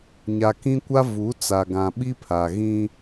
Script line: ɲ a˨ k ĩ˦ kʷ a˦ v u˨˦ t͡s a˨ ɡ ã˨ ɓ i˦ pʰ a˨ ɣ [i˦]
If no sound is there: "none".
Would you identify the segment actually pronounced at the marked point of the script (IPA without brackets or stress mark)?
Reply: ĩ˦